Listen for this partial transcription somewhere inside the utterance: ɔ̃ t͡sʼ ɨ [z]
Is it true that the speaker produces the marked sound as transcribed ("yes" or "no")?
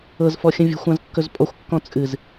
yes